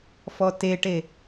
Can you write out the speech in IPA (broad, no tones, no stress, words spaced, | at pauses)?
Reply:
fɔteʈe